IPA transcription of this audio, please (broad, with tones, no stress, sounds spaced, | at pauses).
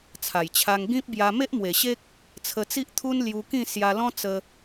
t͡sʰ a˨˩ j t͡ɕʰ a˧ ŋ ɡ ĩ˦ p̚ b j a˧ m e˦ ʔ m w e˨˩ ɕ e˦ k̚ | t͡sʰ ə˧ t͡s i˦ ʔ t̪ʰ u˦ n l j u˧ k ĩ˥˧ s j a˧ l ɔ̃˦ t͡s ə˧